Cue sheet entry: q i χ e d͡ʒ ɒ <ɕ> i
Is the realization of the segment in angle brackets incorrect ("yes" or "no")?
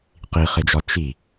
yes